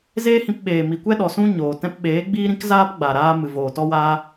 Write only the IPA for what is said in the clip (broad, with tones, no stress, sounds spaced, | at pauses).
z eː˦ h ĩ˧ p ɓ eː˨ m i˨ kʷ ɛ˦ ɗ ɔ˨ s ũ˦ ɲ oː˨ t ɛ̃˧ p ɓ eː˨˦ ɡ͡b iː˦ ɾ ĩ˦ k z aː˦ p ɡ͡b a˨ ɾ aː˧ m ɨ˨ v oː˨ t ɔ˦ w aː˦